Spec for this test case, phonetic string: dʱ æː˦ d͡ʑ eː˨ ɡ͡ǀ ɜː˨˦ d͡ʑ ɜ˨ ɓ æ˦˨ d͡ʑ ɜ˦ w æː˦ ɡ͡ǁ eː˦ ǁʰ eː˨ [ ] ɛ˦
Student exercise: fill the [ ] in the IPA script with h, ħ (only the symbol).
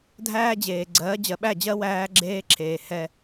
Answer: h